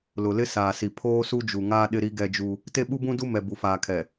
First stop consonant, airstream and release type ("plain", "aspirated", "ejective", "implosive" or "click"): aspirated